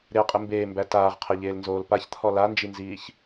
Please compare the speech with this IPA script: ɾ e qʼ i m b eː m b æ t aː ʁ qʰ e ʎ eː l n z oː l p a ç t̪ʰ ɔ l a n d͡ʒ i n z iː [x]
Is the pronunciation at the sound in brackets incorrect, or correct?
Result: incorrect